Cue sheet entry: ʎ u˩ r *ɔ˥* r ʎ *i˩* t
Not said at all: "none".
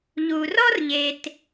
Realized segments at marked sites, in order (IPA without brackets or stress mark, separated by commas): ɔ˥, e˩